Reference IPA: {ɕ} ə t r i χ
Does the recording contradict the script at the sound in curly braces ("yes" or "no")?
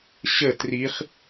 no